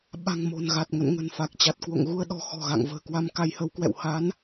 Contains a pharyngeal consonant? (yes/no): no